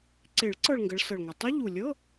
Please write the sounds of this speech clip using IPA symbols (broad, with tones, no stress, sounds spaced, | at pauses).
ǀ e˨˩˦ ɭ ǀ ɤ˥˧ ɭ ŋ ɡ ə˨˦ ɭ s ɤ˨˩ ɭ ŋʷ ɛ˨˩ tˤ ɤ˦˥ ʎ u˨˩ lʲ ɤ˧˥˧